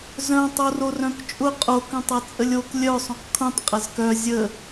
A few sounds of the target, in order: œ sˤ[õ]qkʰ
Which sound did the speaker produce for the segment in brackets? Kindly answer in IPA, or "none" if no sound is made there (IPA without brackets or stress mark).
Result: õ